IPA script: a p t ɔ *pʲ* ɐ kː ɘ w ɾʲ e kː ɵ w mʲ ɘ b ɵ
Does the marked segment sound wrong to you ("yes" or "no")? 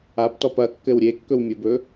yes